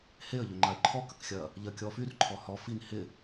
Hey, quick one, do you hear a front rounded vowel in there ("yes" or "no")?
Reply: yes